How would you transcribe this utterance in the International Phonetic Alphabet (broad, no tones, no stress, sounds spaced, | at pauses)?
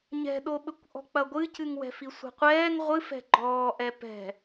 ɲ ɛ̤ ɗ o ɓ ɘ kʷ ʔ ɔ̤ k͡p ɐ ɡʷ ɨ c ɨ ŋ w ɛ̤ f i sʷ ɛ̤ qʷ ɛː ŋ ʁʷ ɨ f ɛ̤ ɡ͡ǃ ɔː ʔ ɛ p ɛ̤